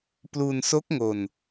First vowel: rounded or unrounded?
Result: rounded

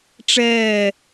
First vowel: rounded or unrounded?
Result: unrounded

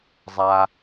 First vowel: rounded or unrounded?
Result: unrounded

